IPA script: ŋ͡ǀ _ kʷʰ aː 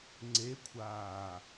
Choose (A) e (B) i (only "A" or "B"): A